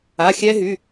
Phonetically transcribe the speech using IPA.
a˩˧˩ xʲ ɛ˦˥ ɦ y˩˧˩

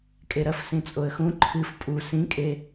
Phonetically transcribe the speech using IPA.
kʼ e ɾ ɐ f s ĩ t͡sʼ o ə̯ x ũ ǃʰ ɨ f pʼ u s ĩ kʼ e

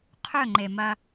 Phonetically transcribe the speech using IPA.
qʰ ɵ˦˨ ŋ͡ǃ e˨ m ɐ˦

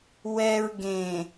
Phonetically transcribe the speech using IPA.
w ɛ˨ ɹ ɡ ẽ˨

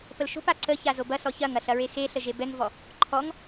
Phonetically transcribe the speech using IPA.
p ə l ʃ o̤ p a ǀ ə ç a z o b ɐ s ɔ ç ɐ ŋ ɐ ɬ ɐ ɹ e x e ɬ ə ʒ e b ɛ ŋ v ɔ | ǃʰ ɔ ŋ

